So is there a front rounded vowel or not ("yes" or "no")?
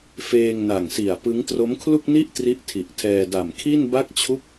no